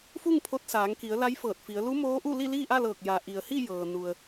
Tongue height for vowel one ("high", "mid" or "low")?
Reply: high